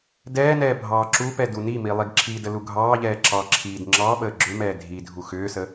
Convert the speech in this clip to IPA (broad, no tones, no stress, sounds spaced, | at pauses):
d ɛː n ɛː bʱ ɑː ǁ u p ɛ d u n i m i lˠ i ɡ ǁʰ i d ə l u ɡʱ ɑː ʎ ɛː ǁ ɑ ǁʰ iː d ŋ͡ǁ ɑ ɓ əː ɡ͡ǁ ʏ m ɛː dʱ i dʱ u x ʏː s ə